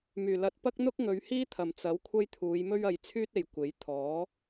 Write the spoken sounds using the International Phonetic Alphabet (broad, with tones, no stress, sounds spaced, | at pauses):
m yː˨˩ l ɐ˧ t̚ p ɐ˥ k̚ n̪ ʊ˥ k̚ ŋ ɵ˨˧ ɥ h iː˥ t̪ʰ ɐ˨˩ m t͡s ɐ˨˥ w kʷʰ ɐ˥ j t̪ʰ uː˨˧ j m ɵ˥ ɥ ɐ˨˧ j t͡sʰ yː˥ t̚ e˨˩ j kʷ e˨˥ j t̪ʰ ɔː˨˥